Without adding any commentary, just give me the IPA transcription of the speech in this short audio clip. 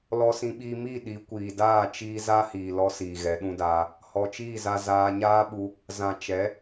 lɔ˧sĩ˧ɓiː˧ mi˦˨ ɗi˨˦kʷiː˨ daː˦˨t͡ʃiː˧ za˦hiː˨ lɔ˦siː˨ɣɛ˨˦ ɗũ˧daː˧ | hɔ˨t͡ʃiː˦˨za˧ zaː˧ ɲaː˦ɓu˧ | zã˨t͡ʃɛ˨˦

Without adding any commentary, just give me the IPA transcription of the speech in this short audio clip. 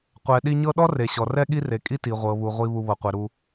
qʷɛ˨ɗi˦ ɲɤ˦ɗɔ˥ re˩ ɕɔ˩rɛ˦ ɠi˦re˩kʼi˦ ti˩ʁʷɤ˩βu˩ʁʷi˨ βu˨βɤ˩qʷe˩ ɾu˨

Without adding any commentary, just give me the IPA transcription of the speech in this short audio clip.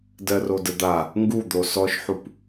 dɜrodəd̪a | ŋɡud̪o sɔʃħup

